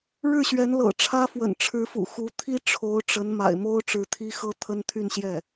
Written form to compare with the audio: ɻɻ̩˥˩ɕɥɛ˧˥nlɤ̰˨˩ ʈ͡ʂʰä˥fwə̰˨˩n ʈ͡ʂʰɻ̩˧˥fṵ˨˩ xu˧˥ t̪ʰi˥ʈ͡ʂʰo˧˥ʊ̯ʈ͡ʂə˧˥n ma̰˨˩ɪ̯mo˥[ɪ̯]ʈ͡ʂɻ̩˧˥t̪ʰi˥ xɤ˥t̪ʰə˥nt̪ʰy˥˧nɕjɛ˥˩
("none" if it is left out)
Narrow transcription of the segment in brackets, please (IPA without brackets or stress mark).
ʊ̯